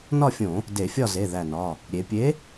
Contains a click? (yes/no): no